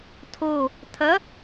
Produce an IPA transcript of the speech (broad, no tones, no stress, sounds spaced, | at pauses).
tʰ o | tʰ ɐ